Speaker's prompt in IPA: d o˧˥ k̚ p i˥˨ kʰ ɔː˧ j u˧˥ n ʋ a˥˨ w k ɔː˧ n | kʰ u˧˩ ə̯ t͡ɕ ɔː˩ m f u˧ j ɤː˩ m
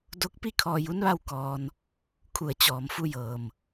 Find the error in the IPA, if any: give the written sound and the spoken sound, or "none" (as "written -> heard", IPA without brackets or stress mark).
none